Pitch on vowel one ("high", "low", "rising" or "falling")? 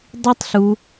high